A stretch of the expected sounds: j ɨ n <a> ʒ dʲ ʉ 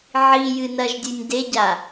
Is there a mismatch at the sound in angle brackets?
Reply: yes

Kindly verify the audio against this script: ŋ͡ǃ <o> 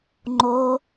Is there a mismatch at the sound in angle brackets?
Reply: yes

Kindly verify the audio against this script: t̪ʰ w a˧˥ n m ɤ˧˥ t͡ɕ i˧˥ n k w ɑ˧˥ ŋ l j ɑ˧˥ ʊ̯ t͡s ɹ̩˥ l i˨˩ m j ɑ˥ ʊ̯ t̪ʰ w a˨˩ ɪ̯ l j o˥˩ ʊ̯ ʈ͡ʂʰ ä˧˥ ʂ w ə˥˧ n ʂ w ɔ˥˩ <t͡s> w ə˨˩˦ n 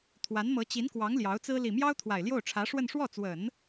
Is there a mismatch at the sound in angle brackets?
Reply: no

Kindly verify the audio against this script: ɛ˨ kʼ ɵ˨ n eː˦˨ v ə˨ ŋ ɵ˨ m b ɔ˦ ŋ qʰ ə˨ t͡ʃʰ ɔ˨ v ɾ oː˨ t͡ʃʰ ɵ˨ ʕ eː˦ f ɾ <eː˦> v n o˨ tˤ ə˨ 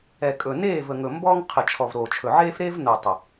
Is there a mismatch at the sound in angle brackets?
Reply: no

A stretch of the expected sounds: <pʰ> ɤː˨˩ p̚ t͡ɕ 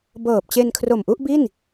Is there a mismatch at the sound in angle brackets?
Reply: yes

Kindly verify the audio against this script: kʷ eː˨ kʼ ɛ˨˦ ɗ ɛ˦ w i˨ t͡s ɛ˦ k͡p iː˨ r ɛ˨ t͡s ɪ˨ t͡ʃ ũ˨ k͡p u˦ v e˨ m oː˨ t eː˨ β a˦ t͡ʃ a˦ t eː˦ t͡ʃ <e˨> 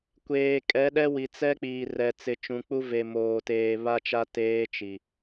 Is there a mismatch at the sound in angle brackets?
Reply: yes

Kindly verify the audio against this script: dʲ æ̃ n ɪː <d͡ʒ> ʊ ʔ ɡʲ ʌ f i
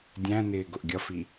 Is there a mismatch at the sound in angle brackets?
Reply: yes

